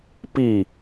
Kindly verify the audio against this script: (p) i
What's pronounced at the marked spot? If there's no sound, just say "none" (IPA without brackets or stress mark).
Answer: p